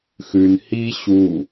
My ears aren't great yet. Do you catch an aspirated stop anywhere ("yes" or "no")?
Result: no